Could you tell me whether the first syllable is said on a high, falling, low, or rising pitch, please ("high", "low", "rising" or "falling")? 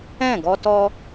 falling